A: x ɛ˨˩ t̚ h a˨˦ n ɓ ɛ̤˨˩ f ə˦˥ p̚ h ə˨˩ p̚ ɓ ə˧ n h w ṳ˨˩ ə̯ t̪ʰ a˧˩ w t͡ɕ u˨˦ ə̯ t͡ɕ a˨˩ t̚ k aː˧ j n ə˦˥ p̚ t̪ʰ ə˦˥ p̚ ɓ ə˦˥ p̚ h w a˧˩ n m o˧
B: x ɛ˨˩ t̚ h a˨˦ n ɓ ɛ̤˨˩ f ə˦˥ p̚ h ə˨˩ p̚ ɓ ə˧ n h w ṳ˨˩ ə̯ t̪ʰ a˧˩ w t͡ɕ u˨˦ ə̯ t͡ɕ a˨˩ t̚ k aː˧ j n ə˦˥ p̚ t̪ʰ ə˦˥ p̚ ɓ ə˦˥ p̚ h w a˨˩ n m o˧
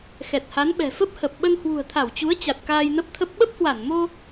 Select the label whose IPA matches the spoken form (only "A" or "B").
A